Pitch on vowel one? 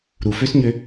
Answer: low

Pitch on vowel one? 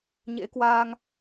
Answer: rising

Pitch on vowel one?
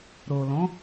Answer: low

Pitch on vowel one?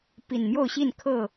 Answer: low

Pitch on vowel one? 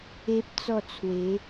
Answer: high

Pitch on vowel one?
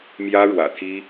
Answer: high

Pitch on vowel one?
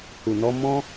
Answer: low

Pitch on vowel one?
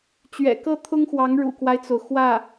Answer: low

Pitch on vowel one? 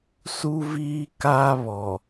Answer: high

